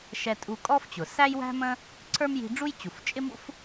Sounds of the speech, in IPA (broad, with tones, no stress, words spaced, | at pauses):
ʃɛ˧tʼu˧kʼɔ˥ft͡ɕʊ˩ sæ˥jwæ̤˥mə̃˥ | ǀʰə˞˥mji̤˧ ɖ͡ʐu˥j t͡ɕu˩ft͡ʃʼɪ˥mṵ˥f